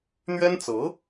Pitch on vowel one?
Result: high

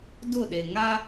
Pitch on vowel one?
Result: falling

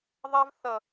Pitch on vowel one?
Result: high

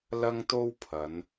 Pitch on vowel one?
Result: high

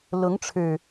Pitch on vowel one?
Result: rising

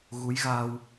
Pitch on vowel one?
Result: rising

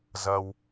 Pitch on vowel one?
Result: high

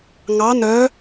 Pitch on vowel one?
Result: rising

